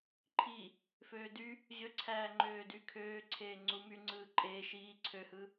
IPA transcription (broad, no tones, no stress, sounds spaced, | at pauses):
ǃʰ i | f øː d y | ʑ ø ǀʰ æː ŋ͡ǃ øː d y kʰ øː ǀʰ eː ŋ͡ǀ u m y ŋ͡ǀ ɯː ǃʼ eː ʃ iː ǀʰ ø h ɯ